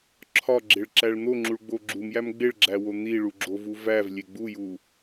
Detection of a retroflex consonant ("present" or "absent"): present